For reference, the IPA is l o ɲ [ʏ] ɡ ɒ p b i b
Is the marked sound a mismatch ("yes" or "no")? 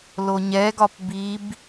yes